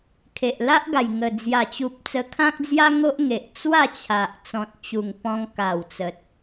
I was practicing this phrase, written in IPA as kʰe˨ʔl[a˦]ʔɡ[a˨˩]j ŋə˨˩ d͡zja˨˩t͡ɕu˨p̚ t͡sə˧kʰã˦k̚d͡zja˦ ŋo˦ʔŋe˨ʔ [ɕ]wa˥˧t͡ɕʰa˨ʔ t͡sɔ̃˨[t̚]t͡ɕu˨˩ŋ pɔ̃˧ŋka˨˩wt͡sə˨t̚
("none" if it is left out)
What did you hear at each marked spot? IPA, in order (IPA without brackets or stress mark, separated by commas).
a˦, a˨˩, t͡s, t̚